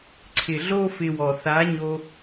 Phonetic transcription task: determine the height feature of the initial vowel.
high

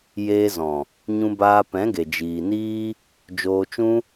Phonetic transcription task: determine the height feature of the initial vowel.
mid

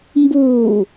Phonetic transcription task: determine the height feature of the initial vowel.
high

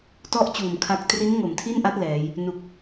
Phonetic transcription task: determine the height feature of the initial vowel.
mid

